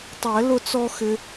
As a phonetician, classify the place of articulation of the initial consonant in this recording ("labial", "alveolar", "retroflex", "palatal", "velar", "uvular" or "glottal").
alveolar